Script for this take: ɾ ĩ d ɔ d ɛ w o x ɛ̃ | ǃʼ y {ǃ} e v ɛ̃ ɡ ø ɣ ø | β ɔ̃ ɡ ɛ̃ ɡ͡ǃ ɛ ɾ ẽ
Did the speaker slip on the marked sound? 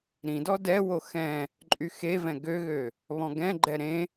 yes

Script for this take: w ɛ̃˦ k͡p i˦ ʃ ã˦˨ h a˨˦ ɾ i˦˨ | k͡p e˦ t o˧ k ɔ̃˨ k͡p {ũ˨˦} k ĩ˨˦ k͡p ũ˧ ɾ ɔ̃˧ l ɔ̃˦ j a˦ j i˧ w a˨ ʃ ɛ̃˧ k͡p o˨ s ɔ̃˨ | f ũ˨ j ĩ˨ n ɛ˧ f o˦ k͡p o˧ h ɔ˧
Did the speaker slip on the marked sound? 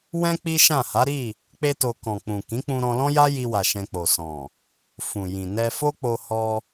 yes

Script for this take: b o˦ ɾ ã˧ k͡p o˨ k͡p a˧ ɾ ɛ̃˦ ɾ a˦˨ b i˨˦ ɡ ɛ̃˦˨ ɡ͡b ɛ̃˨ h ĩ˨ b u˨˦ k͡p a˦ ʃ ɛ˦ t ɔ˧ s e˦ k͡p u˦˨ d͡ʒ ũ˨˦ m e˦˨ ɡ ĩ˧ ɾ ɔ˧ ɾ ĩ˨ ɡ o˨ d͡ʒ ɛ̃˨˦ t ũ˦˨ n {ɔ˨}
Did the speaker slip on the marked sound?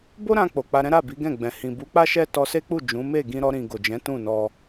yes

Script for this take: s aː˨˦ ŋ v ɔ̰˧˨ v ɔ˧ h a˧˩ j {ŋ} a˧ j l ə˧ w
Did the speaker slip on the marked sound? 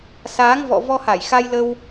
yes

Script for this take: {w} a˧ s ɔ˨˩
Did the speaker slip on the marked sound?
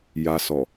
yes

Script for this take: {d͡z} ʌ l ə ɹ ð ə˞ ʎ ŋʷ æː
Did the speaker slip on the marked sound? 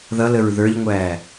yes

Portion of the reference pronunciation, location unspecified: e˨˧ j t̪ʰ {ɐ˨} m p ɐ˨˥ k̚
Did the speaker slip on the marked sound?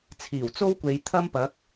yes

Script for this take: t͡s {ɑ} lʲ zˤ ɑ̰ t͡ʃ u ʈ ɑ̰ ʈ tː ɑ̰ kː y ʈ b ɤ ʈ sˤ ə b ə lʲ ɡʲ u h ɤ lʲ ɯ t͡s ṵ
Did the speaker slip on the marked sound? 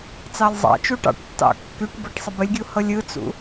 no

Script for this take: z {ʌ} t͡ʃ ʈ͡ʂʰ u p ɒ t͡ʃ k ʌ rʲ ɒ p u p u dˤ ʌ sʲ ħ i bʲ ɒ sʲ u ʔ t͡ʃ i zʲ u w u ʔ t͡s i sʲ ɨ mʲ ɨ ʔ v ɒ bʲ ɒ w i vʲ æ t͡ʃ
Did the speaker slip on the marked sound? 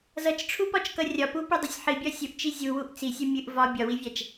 no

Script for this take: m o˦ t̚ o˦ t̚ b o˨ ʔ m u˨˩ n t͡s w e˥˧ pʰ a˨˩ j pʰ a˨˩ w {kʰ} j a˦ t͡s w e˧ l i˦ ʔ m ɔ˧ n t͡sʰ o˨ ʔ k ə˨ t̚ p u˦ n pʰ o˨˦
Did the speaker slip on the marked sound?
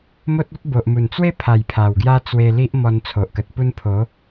yes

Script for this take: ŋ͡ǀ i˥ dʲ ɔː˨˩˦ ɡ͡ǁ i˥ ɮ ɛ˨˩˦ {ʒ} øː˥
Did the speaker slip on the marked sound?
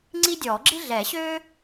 yes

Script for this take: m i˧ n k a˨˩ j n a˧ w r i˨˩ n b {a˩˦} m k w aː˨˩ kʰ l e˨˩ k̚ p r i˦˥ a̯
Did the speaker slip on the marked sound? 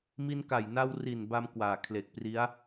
yes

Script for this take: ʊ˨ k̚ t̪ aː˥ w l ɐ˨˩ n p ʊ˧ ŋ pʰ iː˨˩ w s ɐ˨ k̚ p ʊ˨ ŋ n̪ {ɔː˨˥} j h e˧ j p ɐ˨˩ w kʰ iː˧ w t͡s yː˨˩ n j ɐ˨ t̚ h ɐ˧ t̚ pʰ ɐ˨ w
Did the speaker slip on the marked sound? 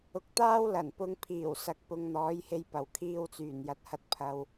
no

